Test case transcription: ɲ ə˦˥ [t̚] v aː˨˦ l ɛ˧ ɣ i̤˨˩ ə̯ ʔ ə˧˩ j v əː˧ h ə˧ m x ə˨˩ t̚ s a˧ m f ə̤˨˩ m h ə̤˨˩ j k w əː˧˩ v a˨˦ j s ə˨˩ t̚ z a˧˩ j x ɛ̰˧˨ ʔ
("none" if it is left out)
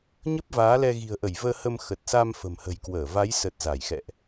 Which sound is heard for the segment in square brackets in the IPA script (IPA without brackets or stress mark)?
p̚